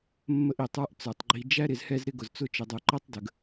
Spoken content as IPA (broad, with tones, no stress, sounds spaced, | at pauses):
mː ə˦ ʔ i˨ tˤ ə˞˦ ʔ t͡s ə˞˨ tˤ ɡ͡ǃ i˨ d͡ʒ æ˦ ɾ ɪ˨ z h ɛ˦ z ɾ ɪ˦ ɡ ʊ˨ z t͡s ʊ˦ t͡ʃ ɪ˨ dˤ u˨ ǃ ɛ˦ tˤ d ə˨ ɡ